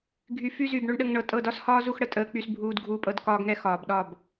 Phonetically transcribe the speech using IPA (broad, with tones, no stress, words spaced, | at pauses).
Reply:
ɡʱy˨fy˧ zy˨b ɳo˧ɳɗə˧ŋ ɳɤ˨tʼɤ˦˨dɒ˦shɒː˦ zu˦xɽə˨ tʼəː˧ k͡py˧sbʱuː˧dɡʱuː˧pʼɤ˧d kɒː˦ɡŋɛ˦ xɒː˨bɗɒ˦˨b